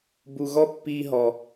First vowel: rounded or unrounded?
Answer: rounded